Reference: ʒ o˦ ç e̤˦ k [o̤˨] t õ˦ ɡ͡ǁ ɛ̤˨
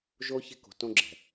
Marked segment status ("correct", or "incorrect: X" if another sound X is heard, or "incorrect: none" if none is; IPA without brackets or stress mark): correct